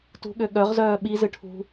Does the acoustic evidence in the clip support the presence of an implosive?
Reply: yes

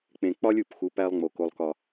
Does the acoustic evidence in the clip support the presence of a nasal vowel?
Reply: yes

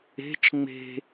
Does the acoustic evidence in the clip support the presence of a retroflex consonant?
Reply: no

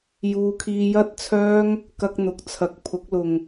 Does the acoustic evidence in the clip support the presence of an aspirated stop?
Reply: yes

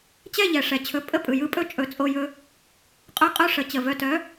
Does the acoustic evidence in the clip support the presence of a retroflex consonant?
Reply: yes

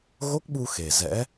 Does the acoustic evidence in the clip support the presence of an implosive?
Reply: yes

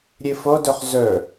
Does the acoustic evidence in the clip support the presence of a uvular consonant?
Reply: yes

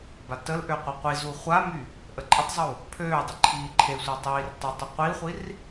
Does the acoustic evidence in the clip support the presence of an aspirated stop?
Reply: yes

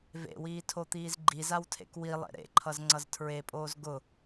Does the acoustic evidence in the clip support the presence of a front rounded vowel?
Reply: no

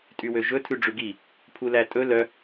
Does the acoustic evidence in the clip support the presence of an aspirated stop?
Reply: yes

